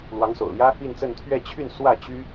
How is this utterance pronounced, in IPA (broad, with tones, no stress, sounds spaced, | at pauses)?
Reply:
l w ɑ˧˥ ŋ s o̰˨˩ ʊ̯ l j ä˥ | i˥˧ n t͡s ə˥˧ n t̪ʰ ɥ ɛ˥˧ t͡ɕʰ y˥˧ n s w ä˥˩ t͡ɕ y˥